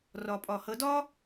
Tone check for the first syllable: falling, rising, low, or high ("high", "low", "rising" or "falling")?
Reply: low